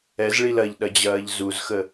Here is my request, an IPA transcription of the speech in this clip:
ɛ z ɭ i l ɐ ʎ ɗ ɐ d͡ʑ ɐː ʎ z u z x ə

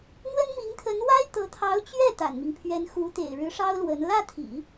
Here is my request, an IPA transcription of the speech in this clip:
n̪ w ə˥ n m i˧˥ ŋ t̪ʰ ə˧˥ n w a˥ ɪ̯ t̪ ɤ˧˥ t̪ʰ ɑ˧˥ ʊ̯ t͡ɕ ɥ ɛ˥˩ t̪ a̰˨˩ n m i˦ ŋ pʰ ɥ ɛ˧˥ n x u˧˥ t̪ ḛ˨˩ ɪ̯ ɻ ɻ̩˧˥ ʂ ɑ˥ ʊ̯ l w ə˧˥ n l ä˥˩ t̪ʰ ḭ˨˩˦

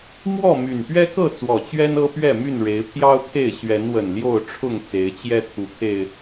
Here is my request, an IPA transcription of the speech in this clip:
m w ɔ˥˨ m y˨˩ n p ɥ ɛ˦ k ɤ˥˨ t͡s w ɔ˨˩ t͡ɕ ɥ ɛ˦ n ɤ˦ p ɥ ɛ˥˨ m y˥˨ n ɻ e˨˦ ɪ̯ pʰ j ɑ˦ ʊ̯ pʰ e˥˨ ɪ̯ ɕ ɥ ɛ˨˦ n w ə˨˩ n l j o˥˨ ʊ̯ ʈ͡ʂʰ ʊ˥˨ ŋ t͡s e˨˦ ɪ̯ t͡ɕ j ɛ˦ t̪ʰ u˨˦ kʰ e˨˩ ɪ̯

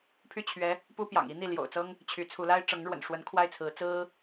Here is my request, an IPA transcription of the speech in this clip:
pʰ y˥˩ t͡ɕʰ ɥ ɛ˧˥ | p u˥ p j ɑ̰˨˩ ŋ i˧˥ n̪ i˥˩ l j o̰˨˩ ʊ̯ t͡s ɤ˥ ŋ | t͡ɕʰ y˧˥ t͡sʰ u˧˥ l a˥ ɪ̯ ʈ͡ʂ ɤ˧˥ ŋ ɻ w ə̰˨˩ n ʂ w ə˧˥ n kʰ w a˥˩ ɪ̯ t͡sʰ ɹ̩˧˥ t͡s ɹ̩˥

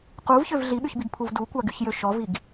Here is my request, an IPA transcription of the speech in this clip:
q u v ç ø v ɮ i ɓ y ç b i ɡ pʰ u v d u kʷ a ɡ y ç j ø ʃ ɔ v i ɡ

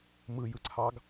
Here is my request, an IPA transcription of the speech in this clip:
m ɯ j ɯ ǀʰ ɑ ɡ

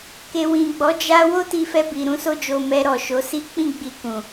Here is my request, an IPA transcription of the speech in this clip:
k e˨ w ĩ˨ ɡ͡b ɔ˨˦ d͡ʒ a˧ w o˦ t i˧ f ɛ˧ b i˨ ɾ ũ˧ s o˧ d͡ʒ o˨ m ɛ˧ ɾ ɔ˨ ʃ o˨˦ s i˦ k͡p ĩ˦˨ ɡ͡b i˧ k ũ˨

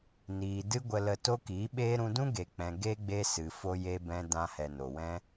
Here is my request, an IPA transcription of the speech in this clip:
n iː˨ d ɨ˦ ɡʷ ə˧ l ə˧ t o˦ k iː˨˦ ɓ eː˦ ɾ ũ˧ d ũ˦ ɡ e˨ k͡p ɛ̃˨ ɡ e˦ ɡ͡b e˦ s ɨ˨ f o˧ j e˧ b ɛ̃˧ d ã˧ h ɛ˨ n o˨ w ɛ̃˦

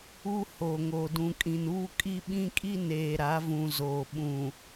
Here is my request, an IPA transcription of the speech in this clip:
u˦ h oː˨ ŋ oː˨ d ũ˨ kʼ ĩ˨ n uː˦ kʼ i˦ ɓ ĩ˦ kʼ i˦ n eː˨ ɾ a˨˦ v ũ˨ z oː˨ ɓ ũ˨

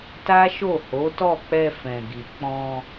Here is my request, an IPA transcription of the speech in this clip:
t a˦ ʃ o˦˨ h o˨˦ t ɔ˦˨ k͡p ɛ˧ f ɛ̃˨ ɡ i˨ k͡p ɔ̃˧

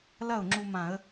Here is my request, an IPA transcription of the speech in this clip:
l ɐ˥˩ ʊ̯ ŋ͡ǁ u˧ m ã˧˩˧ ə̯

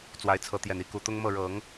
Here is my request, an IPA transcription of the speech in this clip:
t͡s w a˧˥ ɪ̯ t͡sʰ ɤ˧˥ t̪ j ɛ˨˩ n i˧˥ k u˨˩ t̪ ʊ˥ ŋ m ɤ˥˩ ɻ ɤ˨˩˦ ŋ

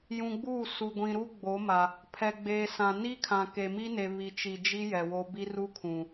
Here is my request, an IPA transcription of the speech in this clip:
j ũ˨ ɡ͡b uː˦˨ s u˨ ɡʷ ĩ˨ ɾ u˦ ɡ͡b o˨˦ m a˨ | pʰ ɛ˨ ɡ͡b eː˨ s ã˨ n i˦ kʰ ã˨ k e˨ m i˦ n e˨ β i˨ t͡ʃ i˨ d͡ʒ i˦ j ɛ˨ w o˦ b i˦ r u˦ kʰ ũ˨

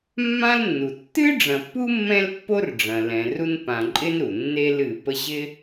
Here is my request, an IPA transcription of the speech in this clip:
mː ã˥ l nː u˩ tː ɨ˥ ɖ͡ʐ ɐ̃˨ pː u˥ mː ɛ̃˦ l pː o˦ r ɖ͡ʐ ɐ̃˨ l ɛ̃˨ r u˦ n p ã˨ ǃʼ ɪ˥ n ɾ u˩ nː e˦ l ɨ˨ p ə˦ ʑ ɪ˥

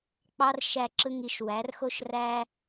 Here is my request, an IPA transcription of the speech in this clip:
k͡p ɑ˦ r ʃ æ˧ ǁ ɯ˧ ŋ i˧ ʃ w æ˨˦ r x o˦ ʃ r æ˦

